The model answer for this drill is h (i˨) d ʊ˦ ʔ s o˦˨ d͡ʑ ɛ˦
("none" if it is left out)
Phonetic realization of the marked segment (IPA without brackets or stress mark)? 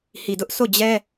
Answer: i˨